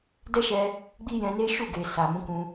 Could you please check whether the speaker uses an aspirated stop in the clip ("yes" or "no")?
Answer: no